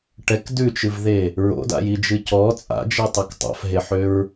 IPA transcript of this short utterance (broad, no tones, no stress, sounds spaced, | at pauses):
ʈ ɛ k d ʉ t͡ʃ ɨ v ð e | ɹ o̰ d a̰ j i d͡ʒ ɨ c ɔ t͡sʼ a̰ d͡ʒ i tˤ a k tˤ a̰ f ɦ e ħ ø ɹ